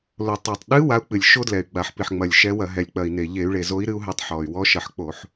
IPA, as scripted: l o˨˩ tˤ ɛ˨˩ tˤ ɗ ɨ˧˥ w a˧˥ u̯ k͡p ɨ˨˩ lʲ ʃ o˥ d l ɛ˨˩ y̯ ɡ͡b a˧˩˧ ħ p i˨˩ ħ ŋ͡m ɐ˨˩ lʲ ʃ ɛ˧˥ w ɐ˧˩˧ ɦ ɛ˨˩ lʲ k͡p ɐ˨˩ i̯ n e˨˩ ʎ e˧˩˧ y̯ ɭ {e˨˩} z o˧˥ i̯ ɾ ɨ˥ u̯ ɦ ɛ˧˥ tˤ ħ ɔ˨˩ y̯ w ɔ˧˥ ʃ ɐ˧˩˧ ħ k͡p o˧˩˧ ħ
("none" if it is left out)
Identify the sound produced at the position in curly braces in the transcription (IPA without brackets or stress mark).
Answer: e˨˩